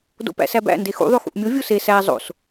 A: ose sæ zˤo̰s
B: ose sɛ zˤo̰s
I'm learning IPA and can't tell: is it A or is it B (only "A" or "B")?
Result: A